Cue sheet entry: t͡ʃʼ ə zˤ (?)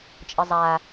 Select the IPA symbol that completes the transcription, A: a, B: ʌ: A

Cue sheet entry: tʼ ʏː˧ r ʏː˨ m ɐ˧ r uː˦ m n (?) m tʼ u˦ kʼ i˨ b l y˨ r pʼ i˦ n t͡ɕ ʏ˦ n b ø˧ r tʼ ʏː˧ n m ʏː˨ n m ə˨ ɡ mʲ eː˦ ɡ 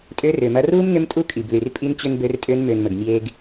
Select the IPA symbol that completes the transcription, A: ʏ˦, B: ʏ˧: A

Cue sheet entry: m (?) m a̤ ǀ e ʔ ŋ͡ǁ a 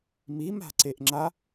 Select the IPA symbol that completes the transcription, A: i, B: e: A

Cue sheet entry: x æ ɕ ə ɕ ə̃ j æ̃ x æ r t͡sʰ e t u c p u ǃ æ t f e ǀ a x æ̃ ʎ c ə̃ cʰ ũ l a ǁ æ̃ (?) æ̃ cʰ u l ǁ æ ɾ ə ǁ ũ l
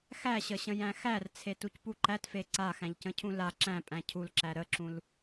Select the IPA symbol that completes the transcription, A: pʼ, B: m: A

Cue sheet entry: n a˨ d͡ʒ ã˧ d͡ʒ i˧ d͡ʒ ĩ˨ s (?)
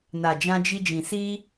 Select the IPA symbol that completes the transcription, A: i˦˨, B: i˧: B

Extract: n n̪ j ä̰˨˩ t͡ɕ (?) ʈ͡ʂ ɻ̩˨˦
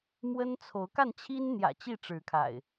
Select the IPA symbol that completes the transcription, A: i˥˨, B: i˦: A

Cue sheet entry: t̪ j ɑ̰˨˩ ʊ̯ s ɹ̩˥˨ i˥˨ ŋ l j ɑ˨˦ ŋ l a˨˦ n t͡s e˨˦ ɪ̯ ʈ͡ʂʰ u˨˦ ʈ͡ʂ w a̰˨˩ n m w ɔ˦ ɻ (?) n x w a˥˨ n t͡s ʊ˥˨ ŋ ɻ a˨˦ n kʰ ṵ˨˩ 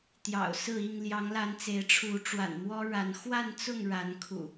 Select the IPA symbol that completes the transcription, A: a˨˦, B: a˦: A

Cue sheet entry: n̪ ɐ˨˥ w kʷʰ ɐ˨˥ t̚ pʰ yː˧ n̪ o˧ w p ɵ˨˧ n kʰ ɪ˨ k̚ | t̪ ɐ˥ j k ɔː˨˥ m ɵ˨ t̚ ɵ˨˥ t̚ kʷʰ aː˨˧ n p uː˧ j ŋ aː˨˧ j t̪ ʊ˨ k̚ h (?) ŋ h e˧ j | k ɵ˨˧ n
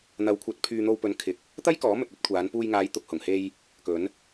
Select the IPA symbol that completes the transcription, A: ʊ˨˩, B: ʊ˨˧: A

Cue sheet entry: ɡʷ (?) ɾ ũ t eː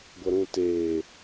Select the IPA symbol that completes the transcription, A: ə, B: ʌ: B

